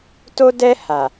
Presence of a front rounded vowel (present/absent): absent